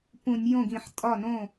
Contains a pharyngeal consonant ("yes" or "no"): yes